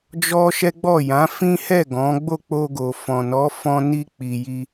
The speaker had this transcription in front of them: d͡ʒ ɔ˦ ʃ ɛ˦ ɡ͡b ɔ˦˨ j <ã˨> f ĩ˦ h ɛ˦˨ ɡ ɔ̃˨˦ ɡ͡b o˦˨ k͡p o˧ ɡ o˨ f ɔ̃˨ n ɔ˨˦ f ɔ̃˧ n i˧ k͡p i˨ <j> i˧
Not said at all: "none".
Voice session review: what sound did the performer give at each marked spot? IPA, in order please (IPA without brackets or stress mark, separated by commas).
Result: ã˨˦, j